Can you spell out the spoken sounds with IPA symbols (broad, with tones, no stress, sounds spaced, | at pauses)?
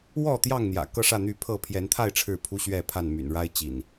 w ɔ˥˨ t̪ j ɑ˥˨ ŋ n̪ j ä̰˨˩ k ɤ˥˨ ʂ ä˥˨ n̪ y˥˨ pʰ ɤ˥˨ pʰ j ɛ˨˦ n t̪ʰ a˥˨ ɪ̯ ʈ͡ʂʰ ɻ̩˥˨ pʰ u˦ ɕ ɥ ɛ˥˨ pʰ a˥˨ n m y̰˨˩ n ɻ a˦ ɪ̯ t͡ɕ ḭ˨˩ n